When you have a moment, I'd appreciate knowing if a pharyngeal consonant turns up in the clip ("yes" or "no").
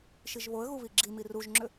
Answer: no